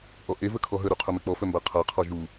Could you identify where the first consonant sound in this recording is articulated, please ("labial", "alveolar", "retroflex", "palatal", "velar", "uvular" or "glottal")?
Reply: glottal